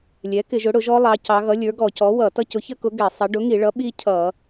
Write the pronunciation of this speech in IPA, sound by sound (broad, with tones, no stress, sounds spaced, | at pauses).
lʲ ɛ˩˥ k ɪ˧˩˧ ʒ ʊ˩˥ ɽ ʊ˧˩˧ ʒ ɔ˦˥ lˠ ɑ˩˧ c ɑ˩˧ ɣ ʌ˩˥ lʲ ə˞˩˥ ɡ ɔ˧˩˧ c ɔ˩˥ w ʌ˧˩˧ t ʌ˦˥ c ʊ˩˥ ç ə˦˥ k ʊ˩˥ ɡ ɛ˧˩˧ sˤ ʌ˩˧ ɖ ʊ˩˥ ŋ i˧˩˧ ɭ ʌ˩˥ ɓ i˦˥ cʰ ʌ˧˩˧